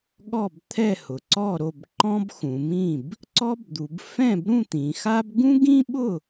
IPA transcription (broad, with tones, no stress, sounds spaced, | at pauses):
ɠ ɔ˥˩ b t̪ʰ ɛ˥˩ h ʊ˩˧ ǀ ɔ˥˩ ɾ o˥˩ b ǃ ɔ̃˥ b x ũ˩˧ m ĩ˥˩ b | ǀ ɔ˥ b d̪ u˩˧ b f ɛ̃˥˩ b ɾ ũ˥˩ t̪ ĩ˩˧ x a˥ b ɡ ũ˥ ɡ ĩ˥ ɓ ʊ˥˩